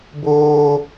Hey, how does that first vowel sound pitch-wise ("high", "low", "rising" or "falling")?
high